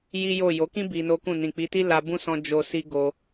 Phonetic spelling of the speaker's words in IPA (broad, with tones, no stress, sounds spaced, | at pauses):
j i˦ j o˦˨ j o˨˦ k ĩ˦ b i˧ n o˦ k ũ˦˨ n ĩ˨ k͡p i˨˦ t i˦ l a˧ b ũ˦ s ɔ̃˧ d͡ʒ o˧ s i˦ ɡ o˧